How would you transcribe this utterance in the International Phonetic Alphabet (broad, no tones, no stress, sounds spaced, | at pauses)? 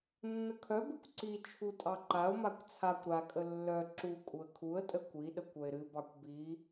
nː ə kʰ œ b ɨ kʷ ǀ i t͡ʃʰ u tʼ ɑ ǃ a ʊ̯ m a kʷ t͡sʰ a kʷ ɾ a kʼ ə lː œ ǁ u kʼ u ə̯ kʰ u ə̯ tʼ ə kʷ i ɗ ə kʷ œ ɪ̯ ɾ ɨ b ɑ kʷ b i